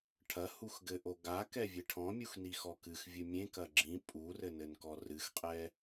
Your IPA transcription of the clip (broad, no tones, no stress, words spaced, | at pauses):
ʈʰɐ huxɡɘʔo ɡakɛ vʲeʈʰɔ̃mʲux nixɔkɨx vʲɨmʲẽkɐ ɡ͡ǁĩ pʼurɘnɘnkɔ rɨxqʼɛ